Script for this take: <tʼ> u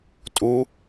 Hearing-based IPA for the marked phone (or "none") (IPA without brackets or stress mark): tʼ